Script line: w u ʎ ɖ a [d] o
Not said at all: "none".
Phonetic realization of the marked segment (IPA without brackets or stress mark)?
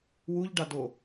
d